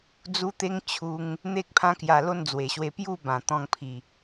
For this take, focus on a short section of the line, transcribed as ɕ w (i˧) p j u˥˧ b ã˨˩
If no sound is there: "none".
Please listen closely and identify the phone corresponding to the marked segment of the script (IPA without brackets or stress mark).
e˧